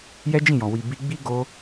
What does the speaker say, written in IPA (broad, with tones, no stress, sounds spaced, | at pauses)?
j ɛ˦ d͡ʒ ĩ˦˨ j ɔ̃˨ w i˨ b i˧ ɡ͡b i˦ ɡ o˧